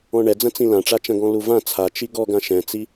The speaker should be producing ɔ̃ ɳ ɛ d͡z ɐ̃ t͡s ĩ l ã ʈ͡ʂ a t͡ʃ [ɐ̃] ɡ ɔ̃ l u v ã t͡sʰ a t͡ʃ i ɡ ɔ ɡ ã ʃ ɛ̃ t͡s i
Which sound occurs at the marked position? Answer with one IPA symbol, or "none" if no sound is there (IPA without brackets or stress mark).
ɐ̃